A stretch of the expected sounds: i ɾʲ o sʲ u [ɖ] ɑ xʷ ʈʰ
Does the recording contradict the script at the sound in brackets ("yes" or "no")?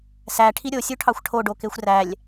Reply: yes